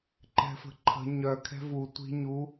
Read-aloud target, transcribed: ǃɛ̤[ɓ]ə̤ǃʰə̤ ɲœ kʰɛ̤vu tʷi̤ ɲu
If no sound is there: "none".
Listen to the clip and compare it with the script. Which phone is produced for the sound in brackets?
f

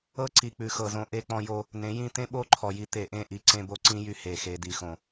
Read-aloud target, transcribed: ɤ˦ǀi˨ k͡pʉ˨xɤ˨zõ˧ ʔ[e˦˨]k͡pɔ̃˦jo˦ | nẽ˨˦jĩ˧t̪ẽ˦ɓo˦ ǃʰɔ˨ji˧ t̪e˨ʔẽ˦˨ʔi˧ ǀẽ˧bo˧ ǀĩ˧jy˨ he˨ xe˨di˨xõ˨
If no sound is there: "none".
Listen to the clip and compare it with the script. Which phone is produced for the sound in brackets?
e˦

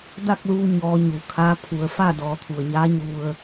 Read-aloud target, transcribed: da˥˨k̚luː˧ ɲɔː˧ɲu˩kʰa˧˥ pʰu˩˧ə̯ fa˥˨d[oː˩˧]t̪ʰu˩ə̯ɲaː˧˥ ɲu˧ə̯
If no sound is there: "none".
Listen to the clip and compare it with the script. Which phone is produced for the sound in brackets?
ɔː˩˧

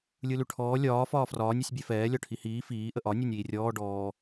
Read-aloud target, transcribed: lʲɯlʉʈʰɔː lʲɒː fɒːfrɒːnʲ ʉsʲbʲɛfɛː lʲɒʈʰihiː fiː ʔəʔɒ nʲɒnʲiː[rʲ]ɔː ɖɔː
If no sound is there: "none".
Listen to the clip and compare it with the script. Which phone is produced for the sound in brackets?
rʲ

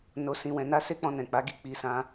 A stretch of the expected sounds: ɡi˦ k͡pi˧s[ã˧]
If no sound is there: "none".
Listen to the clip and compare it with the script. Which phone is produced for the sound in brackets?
ã˧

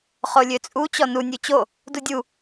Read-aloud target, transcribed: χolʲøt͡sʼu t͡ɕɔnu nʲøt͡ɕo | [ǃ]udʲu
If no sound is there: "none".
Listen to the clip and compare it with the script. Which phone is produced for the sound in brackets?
d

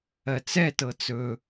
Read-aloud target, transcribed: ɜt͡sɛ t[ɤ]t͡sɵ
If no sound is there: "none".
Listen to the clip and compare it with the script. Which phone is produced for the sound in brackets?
ɤ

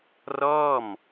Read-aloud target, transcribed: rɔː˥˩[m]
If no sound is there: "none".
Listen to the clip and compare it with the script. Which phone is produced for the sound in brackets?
m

